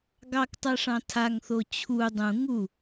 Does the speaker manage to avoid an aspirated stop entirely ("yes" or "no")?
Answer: no